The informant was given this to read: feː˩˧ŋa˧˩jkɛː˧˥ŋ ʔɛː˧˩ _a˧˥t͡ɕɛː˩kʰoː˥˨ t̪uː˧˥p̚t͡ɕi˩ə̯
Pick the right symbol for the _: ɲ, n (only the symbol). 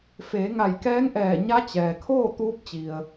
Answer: ɲ